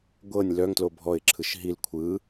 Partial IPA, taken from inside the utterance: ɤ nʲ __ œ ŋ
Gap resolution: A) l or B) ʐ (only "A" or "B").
A